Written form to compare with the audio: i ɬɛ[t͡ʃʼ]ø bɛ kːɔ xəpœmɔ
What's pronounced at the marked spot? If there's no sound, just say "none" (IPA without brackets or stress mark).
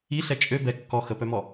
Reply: t͡ʃʼ